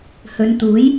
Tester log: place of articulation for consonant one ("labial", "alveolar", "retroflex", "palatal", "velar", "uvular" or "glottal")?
glottal